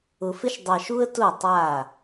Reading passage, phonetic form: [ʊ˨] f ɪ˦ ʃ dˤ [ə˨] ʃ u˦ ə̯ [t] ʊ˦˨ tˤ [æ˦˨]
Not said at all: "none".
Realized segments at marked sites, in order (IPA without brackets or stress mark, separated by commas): ʊ˨, ɑ˨, t, a˦˨